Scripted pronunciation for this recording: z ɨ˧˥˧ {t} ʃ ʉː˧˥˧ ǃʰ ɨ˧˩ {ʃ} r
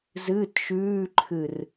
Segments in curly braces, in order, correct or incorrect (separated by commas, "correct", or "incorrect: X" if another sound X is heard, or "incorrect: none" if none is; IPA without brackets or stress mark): correct, incorrect: none